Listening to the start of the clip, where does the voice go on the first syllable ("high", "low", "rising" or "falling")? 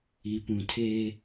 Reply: low